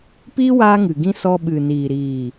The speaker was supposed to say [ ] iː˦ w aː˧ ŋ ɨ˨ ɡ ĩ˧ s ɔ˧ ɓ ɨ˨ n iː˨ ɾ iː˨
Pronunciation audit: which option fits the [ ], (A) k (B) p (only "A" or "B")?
B